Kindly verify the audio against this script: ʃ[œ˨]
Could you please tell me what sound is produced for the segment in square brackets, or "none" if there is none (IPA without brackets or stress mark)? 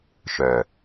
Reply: œ˨